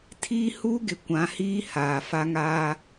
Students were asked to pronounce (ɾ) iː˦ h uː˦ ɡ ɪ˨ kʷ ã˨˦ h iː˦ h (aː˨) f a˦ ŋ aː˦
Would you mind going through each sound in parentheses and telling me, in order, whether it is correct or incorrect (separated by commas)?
incorrect, correct